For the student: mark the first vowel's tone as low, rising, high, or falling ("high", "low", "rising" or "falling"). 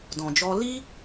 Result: low